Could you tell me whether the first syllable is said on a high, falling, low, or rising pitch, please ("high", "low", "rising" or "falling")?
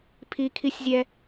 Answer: high